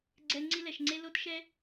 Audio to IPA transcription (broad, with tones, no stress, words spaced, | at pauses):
ɡ͡ǀɛ˥ ŋ͡ǀi˥lɛ˧ʃŋ͡ǀe˥ lo˥tʃɛ˥